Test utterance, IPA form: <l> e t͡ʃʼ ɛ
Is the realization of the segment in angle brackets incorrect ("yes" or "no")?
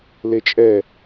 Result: no